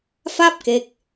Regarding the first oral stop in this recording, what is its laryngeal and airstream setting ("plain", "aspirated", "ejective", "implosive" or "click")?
plain